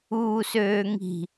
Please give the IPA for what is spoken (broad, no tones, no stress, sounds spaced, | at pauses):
uː s øː ŋ i̤